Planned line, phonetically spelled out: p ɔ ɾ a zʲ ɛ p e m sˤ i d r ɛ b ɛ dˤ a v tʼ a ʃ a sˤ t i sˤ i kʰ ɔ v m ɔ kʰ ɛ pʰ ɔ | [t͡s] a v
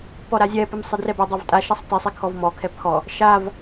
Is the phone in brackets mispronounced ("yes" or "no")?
yes